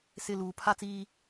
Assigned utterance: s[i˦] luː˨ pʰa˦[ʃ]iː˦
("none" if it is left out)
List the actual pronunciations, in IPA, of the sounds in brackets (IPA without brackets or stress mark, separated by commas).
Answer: ɪ˦, t͡s